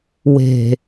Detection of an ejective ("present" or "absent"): absent